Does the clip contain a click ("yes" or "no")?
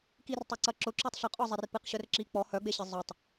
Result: yes